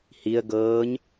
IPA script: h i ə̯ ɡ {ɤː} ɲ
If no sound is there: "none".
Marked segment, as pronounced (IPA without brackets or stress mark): ɤː